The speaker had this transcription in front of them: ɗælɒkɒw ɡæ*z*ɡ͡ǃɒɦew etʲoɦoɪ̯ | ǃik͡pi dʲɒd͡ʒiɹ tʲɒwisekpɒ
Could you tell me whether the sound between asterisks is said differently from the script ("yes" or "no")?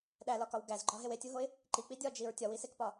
no